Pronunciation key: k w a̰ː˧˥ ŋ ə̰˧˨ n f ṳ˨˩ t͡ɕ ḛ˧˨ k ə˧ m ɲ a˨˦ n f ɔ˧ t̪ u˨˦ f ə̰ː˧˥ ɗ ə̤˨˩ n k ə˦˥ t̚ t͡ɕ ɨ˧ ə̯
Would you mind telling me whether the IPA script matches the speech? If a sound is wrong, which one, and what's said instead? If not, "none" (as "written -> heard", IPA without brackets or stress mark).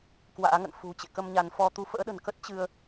none